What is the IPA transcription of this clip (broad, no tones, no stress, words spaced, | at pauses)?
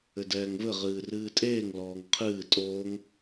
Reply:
ɘdɛːŋvɘ ʁɨːrɨːtʼeːŋ lɔːŋqʰɨː tʼoːŋ